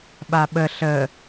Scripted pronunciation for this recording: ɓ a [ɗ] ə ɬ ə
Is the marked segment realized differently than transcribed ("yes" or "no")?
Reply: yes